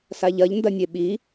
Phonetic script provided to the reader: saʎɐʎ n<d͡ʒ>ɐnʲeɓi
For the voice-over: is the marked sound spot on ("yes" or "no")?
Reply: no